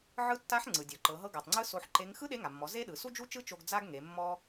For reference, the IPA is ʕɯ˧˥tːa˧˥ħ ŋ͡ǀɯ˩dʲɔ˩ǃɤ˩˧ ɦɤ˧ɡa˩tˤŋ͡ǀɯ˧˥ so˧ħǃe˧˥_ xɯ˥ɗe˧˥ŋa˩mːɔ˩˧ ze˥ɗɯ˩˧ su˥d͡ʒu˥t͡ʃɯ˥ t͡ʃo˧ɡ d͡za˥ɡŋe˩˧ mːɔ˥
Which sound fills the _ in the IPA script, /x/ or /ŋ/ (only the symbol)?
ŋ